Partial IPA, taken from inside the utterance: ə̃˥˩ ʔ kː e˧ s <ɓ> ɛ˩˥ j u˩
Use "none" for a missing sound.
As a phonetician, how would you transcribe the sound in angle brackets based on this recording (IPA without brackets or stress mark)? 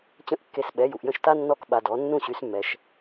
ɓ